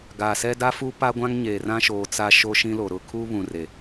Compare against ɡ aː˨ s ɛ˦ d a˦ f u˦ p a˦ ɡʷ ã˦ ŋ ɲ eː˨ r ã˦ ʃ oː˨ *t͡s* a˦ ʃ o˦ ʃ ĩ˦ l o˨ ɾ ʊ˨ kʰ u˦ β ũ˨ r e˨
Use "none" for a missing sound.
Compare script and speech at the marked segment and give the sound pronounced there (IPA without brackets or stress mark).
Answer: t͡s